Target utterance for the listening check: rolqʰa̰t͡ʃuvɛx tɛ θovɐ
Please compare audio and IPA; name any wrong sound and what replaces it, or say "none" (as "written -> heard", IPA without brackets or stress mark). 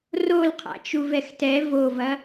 θ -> v